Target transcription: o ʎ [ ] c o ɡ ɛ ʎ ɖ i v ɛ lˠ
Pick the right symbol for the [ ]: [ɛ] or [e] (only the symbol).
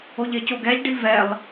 e